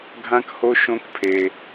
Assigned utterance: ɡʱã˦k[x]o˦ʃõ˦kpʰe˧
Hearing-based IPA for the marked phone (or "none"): h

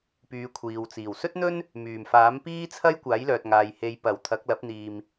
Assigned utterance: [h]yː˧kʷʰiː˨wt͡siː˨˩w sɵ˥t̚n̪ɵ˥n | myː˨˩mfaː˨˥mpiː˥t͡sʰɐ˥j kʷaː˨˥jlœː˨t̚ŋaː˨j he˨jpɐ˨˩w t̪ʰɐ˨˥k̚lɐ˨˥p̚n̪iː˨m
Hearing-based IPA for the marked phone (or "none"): p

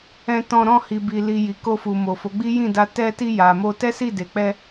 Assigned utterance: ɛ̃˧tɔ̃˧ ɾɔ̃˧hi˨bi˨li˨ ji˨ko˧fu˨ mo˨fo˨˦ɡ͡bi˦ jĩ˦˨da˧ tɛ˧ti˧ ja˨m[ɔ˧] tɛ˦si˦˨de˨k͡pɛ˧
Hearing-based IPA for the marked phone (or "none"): o˧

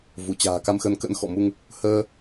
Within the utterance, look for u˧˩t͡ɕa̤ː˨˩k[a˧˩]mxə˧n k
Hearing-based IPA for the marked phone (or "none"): a˧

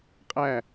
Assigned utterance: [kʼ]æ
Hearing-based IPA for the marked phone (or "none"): qʼ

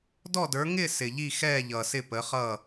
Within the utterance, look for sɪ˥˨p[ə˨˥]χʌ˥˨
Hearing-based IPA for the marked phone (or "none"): ə˨˥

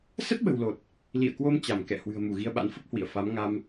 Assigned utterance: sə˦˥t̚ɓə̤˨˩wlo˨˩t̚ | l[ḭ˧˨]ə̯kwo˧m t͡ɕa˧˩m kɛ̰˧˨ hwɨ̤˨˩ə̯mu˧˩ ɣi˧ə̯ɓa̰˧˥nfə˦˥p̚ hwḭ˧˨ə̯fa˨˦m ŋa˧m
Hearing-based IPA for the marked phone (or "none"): ḭ˧˨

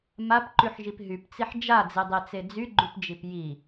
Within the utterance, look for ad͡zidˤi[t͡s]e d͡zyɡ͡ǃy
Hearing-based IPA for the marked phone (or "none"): t͡s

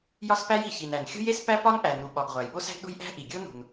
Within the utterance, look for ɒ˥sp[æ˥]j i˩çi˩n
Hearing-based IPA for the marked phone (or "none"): æ˥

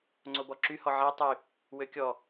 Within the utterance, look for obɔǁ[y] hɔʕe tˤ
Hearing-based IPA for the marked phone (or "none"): y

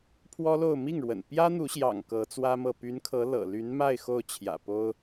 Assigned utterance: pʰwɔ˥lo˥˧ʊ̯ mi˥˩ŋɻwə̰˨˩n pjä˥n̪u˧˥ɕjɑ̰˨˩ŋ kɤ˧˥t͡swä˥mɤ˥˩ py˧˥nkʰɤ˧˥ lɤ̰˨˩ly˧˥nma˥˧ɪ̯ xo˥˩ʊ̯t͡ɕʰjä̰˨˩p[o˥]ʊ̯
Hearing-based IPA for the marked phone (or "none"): o˥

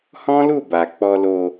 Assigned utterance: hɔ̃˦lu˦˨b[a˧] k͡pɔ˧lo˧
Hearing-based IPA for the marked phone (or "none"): a˨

